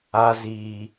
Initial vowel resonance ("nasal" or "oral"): oral